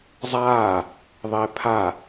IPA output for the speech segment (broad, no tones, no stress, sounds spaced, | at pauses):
zˤ aː | ðˤ e pʰ a